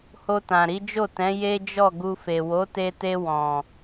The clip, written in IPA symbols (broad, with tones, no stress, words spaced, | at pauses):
ho˧tã˨ɾi˨˦d͡ʒo˦˨ tɛ̃˨˦je˦d͡ʒɔ˦˨ ɡu˧fe˨ wo˨˦te˧te˧ wɔ̃˨